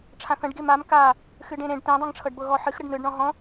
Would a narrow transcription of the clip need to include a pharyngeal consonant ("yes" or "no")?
yes